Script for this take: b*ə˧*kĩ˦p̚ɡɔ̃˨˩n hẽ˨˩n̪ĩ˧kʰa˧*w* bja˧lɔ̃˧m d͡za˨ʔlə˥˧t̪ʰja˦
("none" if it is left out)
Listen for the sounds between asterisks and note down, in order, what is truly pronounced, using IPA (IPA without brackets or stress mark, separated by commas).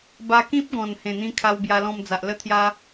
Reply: a˧, w